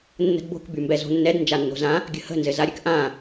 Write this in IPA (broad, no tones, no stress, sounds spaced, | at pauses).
nː ə̤ d b o̤ k b y m b ɛ z o̤ nː ɛ d n d͡ʒ a nː o̤ z ã | ɡʲ ə̤ h ə̤ n z ɘ z a ɾʲ ɘ k ʔ ã